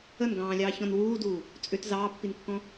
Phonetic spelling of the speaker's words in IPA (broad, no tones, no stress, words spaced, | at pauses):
ənɡɑ̃ːlʲɑːçɔ̃n wuːduː | t͡sʼʏt zɑːpːinkːɔ̃